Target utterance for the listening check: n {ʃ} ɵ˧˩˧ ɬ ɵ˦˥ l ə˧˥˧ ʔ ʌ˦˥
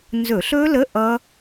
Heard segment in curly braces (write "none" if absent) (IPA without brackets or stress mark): z